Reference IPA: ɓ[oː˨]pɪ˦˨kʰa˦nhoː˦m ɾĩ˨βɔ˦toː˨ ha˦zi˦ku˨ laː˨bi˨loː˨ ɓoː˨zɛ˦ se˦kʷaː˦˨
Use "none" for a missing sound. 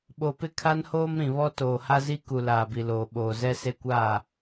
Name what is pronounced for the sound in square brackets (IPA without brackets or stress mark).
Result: o˨